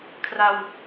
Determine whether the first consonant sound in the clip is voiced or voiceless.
voiceless